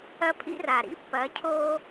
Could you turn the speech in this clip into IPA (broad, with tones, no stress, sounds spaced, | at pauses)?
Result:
ɐ˦ pʰ ḭ˦ r a˨ ɾ ḭ˦ pː ɐ˨˦ cʰ o˦